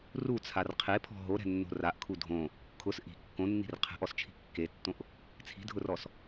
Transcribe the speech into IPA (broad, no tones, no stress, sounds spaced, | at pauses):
r u t͡sʰ a r qʰ e pʰ ɔ̤ ɦ o ɾ ɛ̤ nː o̤ r a ʔ kʰ u dʱ õ | kʰ ʊ s ʔ i̤ kː õ nː i̤ r qʰ ɛ̤ ʔ ɔ s t͡ʃʰ i̤ kː e tː õ ʔ | t͡sʰ i̤ dʱ ʊ r ɔ s